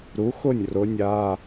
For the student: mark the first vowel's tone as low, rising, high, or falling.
rising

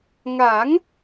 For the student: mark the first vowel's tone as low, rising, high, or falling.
rising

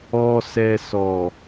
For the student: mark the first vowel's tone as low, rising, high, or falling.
low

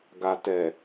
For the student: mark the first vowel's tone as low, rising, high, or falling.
low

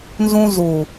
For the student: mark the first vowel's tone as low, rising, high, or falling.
high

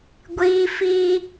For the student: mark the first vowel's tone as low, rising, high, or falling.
high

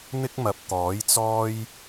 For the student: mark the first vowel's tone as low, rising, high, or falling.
high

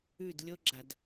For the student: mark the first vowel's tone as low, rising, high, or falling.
falling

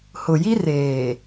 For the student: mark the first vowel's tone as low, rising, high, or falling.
low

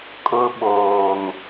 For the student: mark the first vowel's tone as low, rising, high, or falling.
high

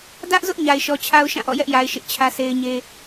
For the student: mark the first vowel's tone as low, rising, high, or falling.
high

